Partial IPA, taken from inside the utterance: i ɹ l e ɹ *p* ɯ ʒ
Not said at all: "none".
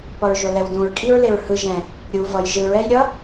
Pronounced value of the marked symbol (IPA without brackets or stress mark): h